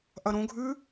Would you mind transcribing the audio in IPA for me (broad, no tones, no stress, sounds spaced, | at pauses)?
ʔ ɐ ɾ õ ɡʱ ʉ